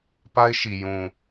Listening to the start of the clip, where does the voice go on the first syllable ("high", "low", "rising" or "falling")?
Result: high